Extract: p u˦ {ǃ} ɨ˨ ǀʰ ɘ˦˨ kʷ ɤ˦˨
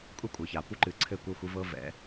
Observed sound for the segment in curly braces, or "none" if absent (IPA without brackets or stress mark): ǃ